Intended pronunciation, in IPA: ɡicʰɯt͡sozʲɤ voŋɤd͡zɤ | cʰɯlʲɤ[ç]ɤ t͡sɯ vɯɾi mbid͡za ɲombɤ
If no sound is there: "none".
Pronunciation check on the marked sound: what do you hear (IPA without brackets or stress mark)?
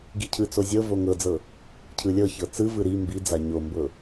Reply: ç